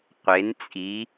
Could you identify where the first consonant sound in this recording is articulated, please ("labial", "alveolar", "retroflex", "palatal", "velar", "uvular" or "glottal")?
uvular